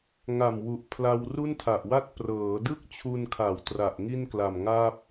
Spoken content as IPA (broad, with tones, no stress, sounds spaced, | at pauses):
ŋ a˨˩ m w u˨˩ ʔ pʰ l a˧ w r u˥˩ n tʰ a˨˩ ʔ w a˥˩ t̚ p r ɤː˩˦ d ɯ˥˩ k̚ t͡ɕʰ u˧ n kʰ a˩˦ w t r a˨˩ ʔ ŋ i˥˩ n k l a˨˩ m ŋ a˥˩ p̚